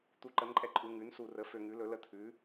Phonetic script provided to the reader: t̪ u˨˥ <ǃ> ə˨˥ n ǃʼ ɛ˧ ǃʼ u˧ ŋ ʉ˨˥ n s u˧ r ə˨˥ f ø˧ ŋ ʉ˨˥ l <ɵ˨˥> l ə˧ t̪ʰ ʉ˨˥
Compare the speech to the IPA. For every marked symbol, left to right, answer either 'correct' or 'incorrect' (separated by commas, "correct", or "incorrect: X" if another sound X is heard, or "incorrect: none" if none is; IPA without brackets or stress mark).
correct, correct